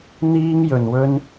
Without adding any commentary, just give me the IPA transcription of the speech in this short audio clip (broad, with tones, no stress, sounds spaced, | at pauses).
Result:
n̪ iː˥ ŋ j ɵ˨ n w ɵ˥ n